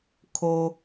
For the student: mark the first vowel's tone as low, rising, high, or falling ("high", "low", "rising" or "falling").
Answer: low